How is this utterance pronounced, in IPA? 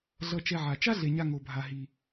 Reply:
ɮ ʌ˨ t͡ʃ ɛ˨ ʕ a˩ t͡ʃ a˥ ɮ e˩ ɲ a˨ ŋ o˩ bʱ a˩ ɦ i˩

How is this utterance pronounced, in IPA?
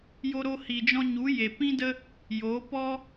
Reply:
j o˧ ɾ o˧ h i˨ d͡ʒ ɔ̃˧ ɲ u˨˦ j e˨ p ĩ˦ d ə˦ | j o˨˦ p ɔ˦

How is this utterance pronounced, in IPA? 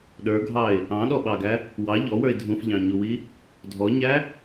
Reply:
ɗ ə˞ ɡʱ ɑ ɪ̯ | ɑ̃ ɗ ɔ ɓ ɑ ɡ æ | w ɑ ʎ ɔ w ə˞ ɪ̯ dʱ ũ f ʎ ɑ̃ ɲ u w i | dʱ ɔ ɲ æ

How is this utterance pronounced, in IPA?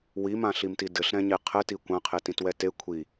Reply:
w i m ã ɬ i m t i d ɘ ɬ ɾ ɛ̃ ɲ e qʰ ɘ t i kʷ ã qʰ e t ĩ t w ɛ t e kʷʰ i

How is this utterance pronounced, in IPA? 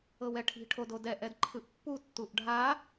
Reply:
ɤ w ɛ ʈʰ i̤ ʈʰ o d o d ɛ ʔ ɛ d ǃʰ ɯ ʔ pː u tː u ʔ ɖʱ a

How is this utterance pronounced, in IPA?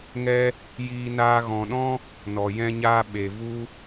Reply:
ŋ ɛ˦ | j iː˧ n aː˧ ɣ ɔ̃˨ ɗ ɔ̃˦ | n ɔ˨ j ɛ̃˦ ɲ aː˦ ɓ e˨ v u˦

